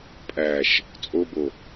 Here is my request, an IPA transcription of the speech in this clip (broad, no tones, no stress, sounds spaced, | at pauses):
pʼ æ ʃ | t͡sʼ o b o